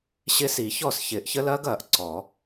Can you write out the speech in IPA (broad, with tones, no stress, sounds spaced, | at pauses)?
ɕ ɪ˦˥ s i˨˩˦ ç ɔ˥˩ s ç ɪː˨˩˦ ʔ ç ə˦˥ l ɐː˦˥ ɡ ɐː˨˩˦ ʔ ǀ ɔ˨˩˦